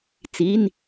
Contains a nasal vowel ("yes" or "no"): no